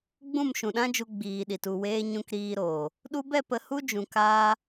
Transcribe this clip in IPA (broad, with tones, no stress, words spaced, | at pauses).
ɡ͡bũ˦˨mʃũ˨ɗã˦d͡ʒu˧ ɡ͡biː˨ɗi˨tu˦˨weː˦ ɲũ˧kɾiː˧ɾoː˨ | ɗu˧bɛ˦˨ pə˧hu˦ d͡ʒũ˨kaː˧